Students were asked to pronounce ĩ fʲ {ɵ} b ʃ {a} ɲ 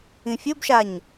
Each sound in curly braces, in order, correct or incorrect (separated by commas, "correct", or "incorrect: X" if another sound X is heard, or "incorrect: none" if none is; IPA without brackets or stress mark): correct, correct